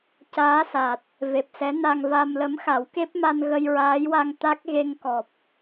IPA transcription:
c aː˧˥ s a˨˩ t̚ | v e˨˩ p̚ s ɛ˧˥ n a˧ ŋ v a˧ m l ə˧˥ m x a˨˩˦ w k e˦˥ p̚ m a˧ n ɣ ə˧ j ɹ aː˧˥ j w a˧ ŋ t̪ a˦˥ k̚ ɣ e˧ ŋ k ɔ˨˩ p̚

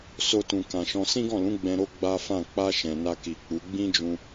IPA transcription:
s o˧ t ũ˨ k ã˨ ʃ ɔ̃˧ s ĩ˦ ɡ ɔ̃˦˨ l ũ˨˦ ɡ͡b ɛ̃˧ ɾ o˦ ɡ͡b a˦ f ã˦˨ k͡p a˧ ʃ ɛ̃˨ n a˧ k i˨ k͡p u˨˦ ɡ͡b ĩ˦ d͡ʒ ũ˧

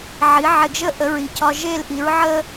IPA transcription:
ʕ i˩˥ ʕ e˧ ɡ ʒ ə˥ ʔ ə˩˥ ɹ i˩ cʰ ɒ˧ ʒ e˥˩ l ʔ i˩˥ ɹ ʕ ə˥

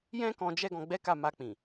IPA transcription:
j ɛ̃˦ k ɔ̃˧ d͡ʒ ɛ˦ ɡ ɔ̃˧ ɡ͡b ɛ˦ k a˦˨ m a˧ k͡p ĩ˨

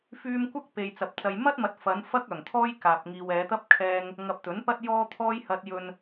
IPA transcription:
f yː˧ m kʷ ɐ˥ k̚ p e˨ j t͡s ɐ˨ p̚ t͡s ɐ˨ j m ɐ˥ t̚ m ɐ˨˥ t̚ f ɐ˨˧ n f ɐ˧ k̚ œː˨˩ ŋ t̪ʰ ɔː˥ j k aː˨ p̚ ŋ iː˨ w ɛː˨˧ t̪ ɐ˥ p̚ kʰ ɛː˧ ŋ | ŋ ɐ˨ p̚ t̪ ɵ˨˥ n p ɐ˥ t̚ j ɔː˧ t̪ʰ ɔː˧ j h ɐ˨ t̚ j ɵ˨ n

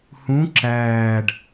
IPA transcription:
h ũ ǁ æː ɖ

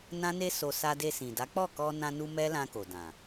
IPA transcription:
n ã˦ n e˦ s o˧ s a˧ d e˧ s ĩ˨ d a˨˦ k͡p ɔ˦˨ k ɔ˧ n ã˧ n u˧ m ɛ˦ l ã˧ k o˨ d ã˨

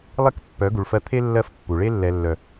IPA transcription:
lˠ e˦ k pː œ˨˦ ɡ u˨ ɭ f ɜ˧ t̪ʰ e˦ lː ɜ˦ f pː u˨ ɭ e˧ lː ɛ˨ lː œ˨

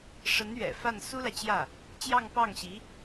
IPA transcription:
ʂ ə˧˥ n ɥ ɛ̰˨˩ f a˥˩ n s u˥ l ä˨ t͡ɕ j ä˥˩ | t͡ɕ j ɑ˥˧ ŋ p ɑ˥˩ ŋ ɕ i˧˥

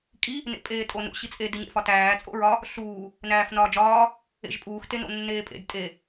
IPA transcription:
kʼ i | n ḛ pʼ eː tʼ o n ṵ ɕ i t͡sʼ e d i ɲ ḛ f ɒ t æː t͡sʼ o̰ ɹ ɒ | ɬ uː | n æː f n ɒː d͡ʒ ɒː | ḛ ʒ pʼ uː x t e n o̰ nː eː pʼ ḛ d tʼ e

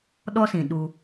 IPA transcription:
ɗ ɔ˦ s ĩ˨ ɗ u˧

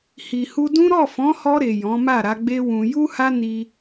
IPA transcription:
h i˨ h u˧ d ũ˦ ɾ ɔ˦˨ f ɔ̃˨˦ h ɔ˧ ɾ e˨ j ɔ̃˨˦ m a˦˨ ɾ a˨˦ ɡ͡b e˦ w ũ˧ j u˦ h a˦ n i˦

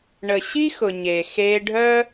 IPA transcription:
ɳ ə˨ ɕ i˦ x ʊ˨ ɲ e˨ x e˧ ɖʱ œ˦

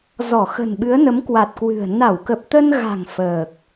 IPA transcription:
z ɔ˧˩ x ə̤˨˩ n ɓ ɨ˨˦ ə̯ n ə˨˦ m k w a˨˩ t̚ k w ɨ̤˨˩ ə̯ n a˧˩ w k ə˨˩ p̚ t̪ ə˧ n ɣ a̤˨˩ ŋ f əː˨˩ k̚

